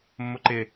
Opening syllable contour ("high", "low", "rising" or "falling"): low